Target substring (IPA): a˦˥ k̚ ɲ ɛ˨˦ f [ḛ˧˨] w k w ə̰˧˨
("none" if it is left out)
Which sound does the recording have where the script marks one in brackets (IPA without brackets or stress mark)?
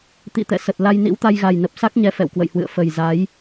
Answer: ɛ̰˧˨